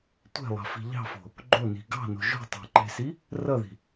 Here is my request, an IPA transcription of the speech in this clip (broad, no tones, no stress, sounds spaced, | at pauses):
tʷ e̤ lˠ ɑ̤ f i̤ ʎ ɑ̤ f o̤ | ɡ͡ǃ o n i̤ ɡ ɑ̤ n o̤ ʒ o̤ tˤ ɑ̤ ǃ e̤ s i | r ʌ ð i̤